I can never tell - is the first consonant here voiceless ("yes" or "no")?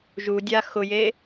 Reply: no